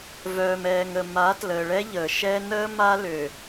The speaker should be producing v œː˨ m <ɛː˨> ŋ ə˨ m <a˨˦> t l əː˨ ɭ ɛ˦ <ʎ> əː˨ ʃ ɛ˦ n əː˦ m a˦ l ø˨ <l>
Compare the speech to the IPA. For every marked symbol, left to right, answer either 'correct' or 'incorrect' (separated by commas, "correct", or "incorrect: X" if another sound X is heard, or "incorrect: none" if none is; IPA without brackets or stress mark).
correct, correct, correct, incorrect: none